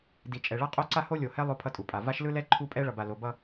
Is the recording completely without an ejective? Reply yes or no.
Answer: no